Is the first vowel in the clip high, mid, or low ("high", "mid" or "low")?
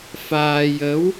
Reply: low